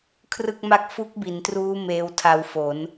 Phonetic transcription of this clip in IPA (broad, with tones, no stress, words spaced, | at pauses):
kʰrɯ˥˩k̚ma˥˩k̚ fu˦˥k̚bi˩˦ntruː˦˥ meː˧wtʰa˧wfo˩˦n